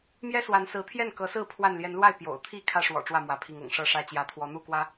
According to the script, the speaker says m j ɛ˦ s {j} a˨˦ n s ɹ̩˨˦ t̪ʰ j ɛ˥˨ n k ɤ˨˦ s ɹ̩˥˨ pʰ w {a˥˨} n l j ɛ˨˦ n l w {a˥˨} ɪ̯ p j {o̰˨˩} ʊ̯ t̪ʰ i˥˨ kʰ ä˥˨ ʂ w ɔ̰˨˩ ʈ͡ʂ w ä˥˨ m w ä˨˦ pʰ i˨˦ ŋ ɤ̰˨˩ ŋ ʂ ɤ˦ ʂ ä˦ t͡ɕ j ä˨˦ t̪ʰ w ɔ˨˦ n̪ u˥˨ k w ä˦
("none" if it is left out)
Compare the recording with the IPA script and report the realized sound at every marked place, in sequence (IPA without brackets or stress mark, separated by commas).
w, a˥˨, a˥˨, o̰˨˩